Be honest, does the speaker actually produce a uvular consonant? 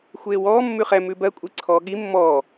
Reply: yes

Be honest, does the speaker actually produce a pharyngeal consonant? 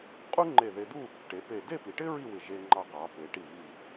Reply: no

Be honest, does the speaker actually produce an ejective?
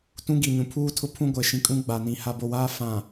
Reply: yes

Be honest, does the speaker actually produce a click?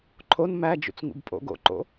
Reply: yes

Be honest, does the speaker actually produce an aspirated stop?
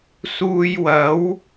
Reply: no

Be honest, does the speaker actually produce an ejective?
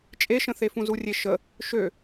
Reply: yes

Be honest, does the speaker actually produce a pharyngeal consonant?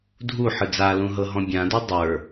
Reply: yes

